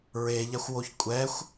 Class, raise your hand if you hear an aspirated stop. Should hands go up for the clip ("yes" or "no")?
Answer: no